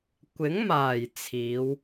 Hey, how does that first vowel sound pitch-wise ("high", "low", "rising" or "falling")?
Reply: rising